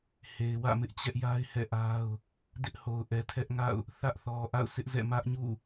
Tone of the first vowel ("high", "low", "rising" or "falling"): low